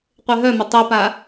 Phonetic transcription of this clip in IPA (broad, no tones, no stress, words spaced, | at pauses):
qʷeɦœmə tˤipa